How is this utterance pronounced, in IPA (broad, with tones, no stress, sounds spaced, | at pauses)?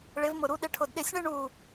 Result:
ɭ ɪ˧˥ v m ʊ˦˨ ɾ u˧˥ ɗ ɪ˧˥ ʈʰ ʊ˦˨ d ɗ ɪ˦˨ sʲ ɳ ɪ˥ ɳ u˦˨